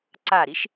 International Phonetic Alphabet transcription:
ǀ a ɾ i ʃ

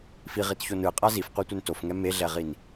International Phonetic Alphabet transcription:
f i ʁ i t ç o n ɯ qʼ a z i f qʷ a tʷ ɛ n t o f ŋ ɛ m e ɮ ɛ ʁ i n

